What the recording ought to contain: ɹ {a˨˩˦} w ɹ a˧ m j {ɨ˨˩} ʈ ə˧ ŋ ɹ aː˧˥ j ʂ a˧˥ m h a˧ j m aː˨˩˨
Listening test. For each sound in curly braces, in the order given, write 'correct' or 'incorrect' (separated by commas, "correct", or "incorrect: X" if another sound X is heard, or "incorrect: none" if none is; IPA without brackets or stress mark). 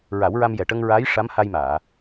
correct, incorrect: ɛ˨˩